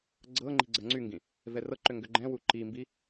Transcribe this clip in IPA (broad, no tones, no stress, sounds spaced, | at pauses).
ɡ͡ǀ ɤ ŋ͡ǃ i̤ ɡ͡ǀ ɜ ŋ͡ǀ y ŋ ɡ ĩ | v ɛ r ɤ ǃ ʏ ŋ ɡ ʏ ɡ͡ǃ ɛ̃ w u ǃ i m b i